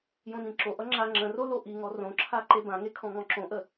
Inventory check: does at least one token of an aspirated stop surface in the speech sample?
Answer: yes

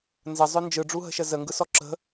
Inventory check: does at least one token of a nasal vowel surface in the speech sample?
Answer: no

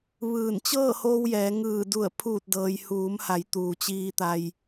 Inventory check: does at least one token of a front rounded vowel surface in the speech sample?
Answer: no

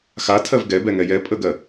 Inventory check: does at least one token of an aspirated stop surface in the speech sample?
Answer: yes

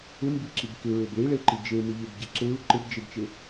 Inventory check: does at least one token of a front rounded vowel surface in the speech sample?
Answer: no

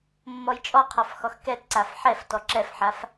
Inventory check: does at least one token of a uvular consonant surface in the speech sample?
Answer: yes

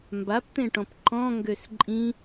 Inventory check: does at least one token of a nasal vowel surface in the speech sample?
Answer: yes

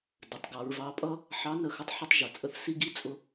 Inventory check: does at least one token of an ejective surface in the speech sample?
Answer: yes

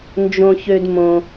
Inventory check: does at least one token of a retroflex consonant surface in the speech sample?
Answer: no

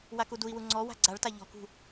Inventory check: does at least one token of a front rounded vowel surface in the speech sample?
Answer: no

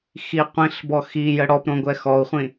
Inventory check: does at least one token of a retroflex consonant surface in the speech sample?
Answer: yes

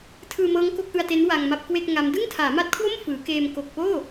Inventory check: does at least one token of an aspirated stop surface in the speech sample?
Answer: yes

